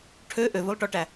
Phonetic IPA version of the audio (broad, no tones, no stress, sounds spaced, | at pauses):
ʈʰ ø ʔ ø v ɵ lˠ ʈ ɔ ʈ æ